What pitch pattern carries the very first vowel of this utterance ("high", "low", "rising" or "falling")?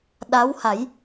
rising